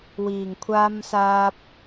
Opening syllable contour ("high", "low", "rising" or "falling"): low